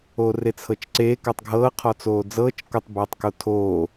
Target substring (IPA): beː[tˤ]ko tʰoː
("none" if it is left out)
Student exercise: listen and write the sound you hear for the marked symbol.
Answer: tˤ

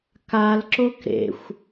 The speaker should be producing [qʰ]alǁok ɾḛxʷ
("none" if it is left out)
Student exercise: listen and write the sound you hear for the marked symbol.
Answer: k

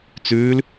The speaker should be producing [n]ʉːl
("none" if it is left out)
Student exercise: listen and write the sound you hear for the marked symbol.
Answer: t͡s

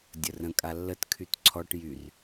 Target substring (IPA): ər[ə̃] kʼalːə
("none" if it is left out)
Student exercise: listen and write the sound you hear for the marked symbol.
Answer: ə̃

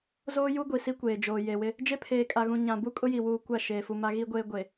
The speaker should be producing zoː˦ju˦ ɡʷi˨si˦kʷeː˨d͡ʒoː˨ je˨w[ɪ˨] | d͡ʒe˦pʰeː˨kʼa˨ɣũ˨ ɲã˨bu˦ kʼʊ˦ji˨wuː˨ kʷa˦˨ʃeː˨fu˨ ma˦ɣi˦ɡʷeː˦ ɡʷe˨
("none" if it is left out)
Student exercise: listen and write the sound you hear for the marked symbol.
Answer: ɪ˦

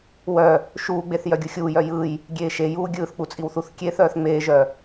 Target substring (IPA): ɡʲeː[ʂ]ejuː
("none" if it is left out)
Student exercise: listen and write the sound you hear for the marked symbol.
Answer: ʃ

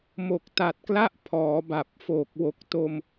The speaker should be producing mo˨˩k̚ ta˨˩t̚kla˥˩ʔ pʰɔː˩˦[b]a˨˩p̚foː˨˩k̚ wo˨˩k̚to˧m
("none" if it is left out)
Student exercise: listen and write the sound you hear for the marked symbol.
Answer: b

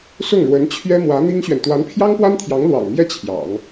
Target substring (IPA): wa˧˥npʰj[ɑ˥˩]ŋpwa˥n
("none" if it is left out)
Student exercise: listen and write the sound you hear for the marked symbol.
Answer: ɑ˥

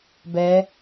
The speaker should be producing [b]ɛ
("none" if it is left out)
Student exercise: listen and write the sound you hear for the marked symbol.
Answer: b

